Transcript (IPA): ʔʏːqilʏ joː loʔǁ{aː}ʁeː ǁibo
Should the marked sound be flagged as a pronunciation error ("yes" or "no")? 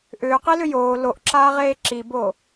no